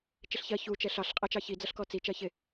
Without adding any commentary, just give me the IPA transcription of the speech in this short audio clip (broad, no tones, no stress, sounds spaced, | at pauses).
t͡ʃ ɪ ɬ ç ɜ ç u t͡ʃ ɛ ɬ ɑ ɬ qʼ æ t͡ʃ ɑ ç i d͡z ʌ ɬ k ɔ t͡s i t͡ʃ ɜ ç ɪ